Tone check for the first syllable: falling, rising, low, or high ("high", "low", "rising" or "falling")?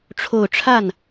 low